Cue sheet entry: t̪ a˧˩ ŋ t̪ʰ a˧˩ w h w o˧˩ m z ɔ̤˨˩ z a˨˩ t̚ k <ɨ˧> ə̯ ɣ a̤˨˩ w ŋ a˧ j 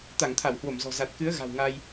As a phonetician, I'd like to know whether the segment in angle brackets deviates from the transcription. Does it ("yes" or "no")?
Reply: yes